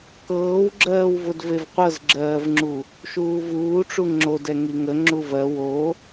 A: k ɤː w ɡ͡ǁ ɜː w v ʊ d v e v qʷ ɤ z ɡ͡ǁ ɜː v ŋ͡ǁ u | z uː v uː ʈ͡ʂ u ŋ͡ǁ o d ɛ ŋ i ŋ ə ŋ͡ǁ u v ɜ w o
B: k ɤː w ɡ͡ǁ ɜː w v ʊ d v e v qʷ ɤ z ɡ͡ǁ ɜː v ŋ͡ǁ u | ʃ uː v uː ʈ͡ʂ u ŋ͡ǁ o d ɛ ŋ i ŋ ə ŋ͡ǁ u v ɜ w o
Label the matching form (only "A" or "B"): B